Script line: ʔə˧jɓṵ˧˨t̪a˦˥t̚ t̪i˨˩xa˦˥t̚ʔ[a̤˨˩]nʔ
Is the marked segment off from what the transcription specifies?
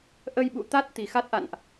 yes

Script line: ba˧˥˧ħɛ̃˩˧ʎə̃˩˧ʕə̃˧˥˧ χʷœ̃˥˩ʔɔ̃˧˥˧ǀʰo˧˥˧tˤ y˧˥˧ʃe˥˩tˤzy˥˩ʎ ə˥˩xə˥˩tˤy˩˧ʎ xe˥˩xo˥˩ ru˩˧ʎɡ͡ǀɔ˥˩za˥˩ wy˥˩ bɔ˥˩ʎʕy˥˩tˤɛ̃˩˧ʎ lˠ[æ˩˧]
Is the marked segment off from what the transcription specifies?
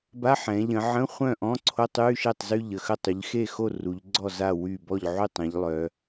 yes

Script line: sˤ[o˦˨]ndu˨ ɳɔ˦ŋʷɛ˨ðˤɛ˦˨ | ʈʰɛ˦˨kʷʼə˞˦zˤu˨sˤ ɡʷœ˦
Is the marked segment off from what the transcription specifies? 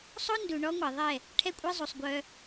yes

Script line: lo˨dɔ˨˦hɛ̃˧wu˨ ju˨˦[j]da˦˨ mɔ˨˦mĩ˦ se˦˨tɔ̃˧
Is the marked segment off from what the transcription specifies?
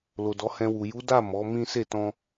yes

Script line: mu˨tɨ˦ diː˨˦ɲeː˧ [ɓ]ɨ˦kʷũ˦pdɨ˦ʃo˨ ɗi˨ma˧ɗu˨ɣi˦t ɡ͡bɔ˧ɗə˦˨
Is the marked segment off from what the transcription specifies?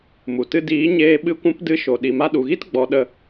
no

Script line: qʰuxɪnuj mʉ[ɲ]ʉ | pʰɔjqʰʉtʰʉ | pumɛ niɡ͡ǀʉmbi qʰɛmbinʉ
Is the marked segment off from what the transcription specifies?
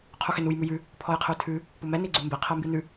yes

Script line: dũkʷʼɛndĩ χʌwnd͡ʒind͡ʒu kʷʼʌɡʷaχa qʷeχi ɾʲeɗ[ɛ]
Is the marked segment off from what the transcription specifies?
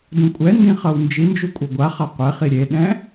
yes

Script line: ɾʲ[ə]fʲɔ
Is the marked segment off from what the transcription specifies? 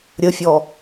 no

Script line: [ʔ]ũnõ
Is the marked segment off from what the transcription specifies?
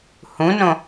yes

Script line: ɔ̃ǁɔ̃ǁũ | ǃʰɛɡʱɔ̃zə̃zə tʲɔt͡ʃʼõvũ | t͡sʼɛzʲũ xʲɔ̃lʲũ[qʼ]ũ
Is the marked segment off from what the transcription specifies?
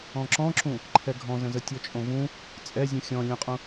no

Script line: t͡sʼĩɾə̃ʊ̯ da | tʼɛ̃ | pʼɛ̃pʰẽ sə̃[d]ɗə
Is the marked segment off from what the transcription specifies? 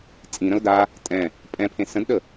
no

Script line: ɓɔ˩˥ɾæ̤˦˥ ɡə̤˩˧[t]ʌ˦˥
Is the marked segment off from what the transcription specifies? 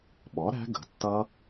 yes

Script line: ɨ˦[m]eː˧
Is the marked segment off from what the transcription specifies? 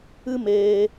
no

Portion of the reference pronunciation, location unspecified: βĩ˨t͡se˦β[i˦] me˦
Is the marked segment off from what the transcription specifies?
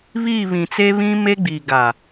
yes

